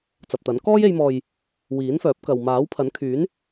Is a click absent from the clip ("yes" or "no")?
yes